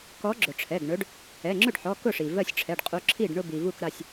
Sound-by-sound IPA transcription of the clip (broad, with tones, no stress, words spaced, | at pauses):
kɔ˨˦ɡ͡ǁʊ˩ʈ͡ʂʰɛ˩˧˩ɡ ɳɵ˨˦ɖ | ɛ˩˧˩ŋ͡ǁɵ˥˩ɖħɔ˩˧˩ kʊ˥˩ʂi˩ vɜ˥˩sʲʈ͡ʂʰɛ˩˧˩ɖqʼu˨˦ǁʰi˥˩ɖ ɳʊ˥˧bi˩vu˥˩kɾa˥˩sʲ